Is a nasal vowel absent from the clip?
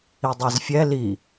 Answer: yes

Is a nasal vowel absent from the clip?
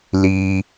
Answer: yes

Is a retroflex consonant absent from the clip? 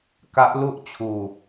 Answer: yes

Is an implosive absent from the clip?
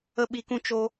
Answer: no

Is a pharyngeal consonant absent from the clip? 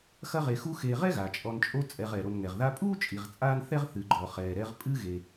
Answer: yes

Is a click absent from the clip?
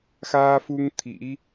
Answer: yes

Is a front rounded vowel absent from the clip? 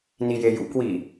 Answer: yes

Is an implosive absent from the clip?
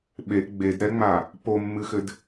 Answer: no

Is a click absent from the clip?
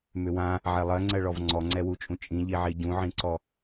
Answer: no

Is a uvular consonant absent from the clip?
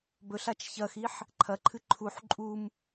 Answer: yes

